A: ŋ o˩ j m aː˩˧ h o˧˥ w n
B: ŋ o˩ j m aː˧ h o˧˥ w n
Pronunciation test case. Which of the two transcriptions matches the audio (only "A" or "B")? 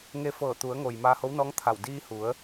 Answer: B